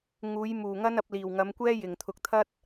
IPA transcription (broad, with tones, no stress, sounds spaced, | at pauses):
ŋ uː˨˧ j m uː˨ ŋ ɐ˥ n ɐ˨˥ p̚ l iː˨ w ŋ ɐ˨˧ m kʷ ɛː˥ j ɪ˨ ŋ t̪ʰ ʊ˧ k̚ t̪ʰ ɐ˥ t̚